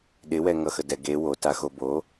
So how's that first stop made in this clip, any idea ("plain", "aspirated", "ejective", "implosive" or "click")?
implosive